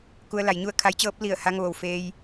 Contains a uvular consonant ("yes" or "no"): no